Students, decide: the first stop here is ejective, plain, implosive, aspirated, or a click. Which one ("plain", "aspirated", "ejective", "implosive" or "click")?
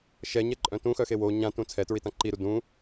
click